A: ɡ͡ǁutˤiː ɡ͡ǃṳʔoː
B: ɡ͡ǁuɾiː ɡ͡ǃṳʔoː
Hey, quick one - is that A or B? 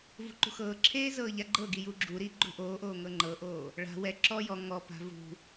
B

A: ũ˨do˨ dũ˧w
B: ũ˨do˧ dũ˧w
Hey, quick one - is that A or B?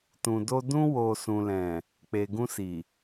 B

